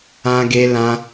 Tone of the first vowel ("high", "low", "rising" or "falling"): high